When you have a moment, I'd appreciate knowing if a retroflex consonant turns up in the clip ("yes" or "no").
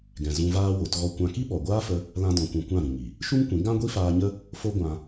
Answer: no